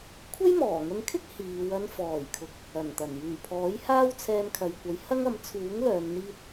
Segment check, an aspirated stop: present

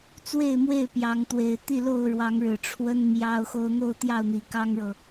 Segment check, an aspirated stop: present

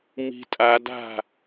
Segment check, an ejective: present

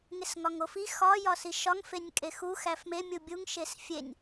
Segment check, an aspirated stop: absent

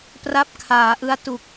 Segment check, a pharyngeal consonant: absent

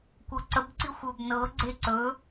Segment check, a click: present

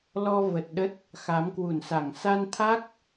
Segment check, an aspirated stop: present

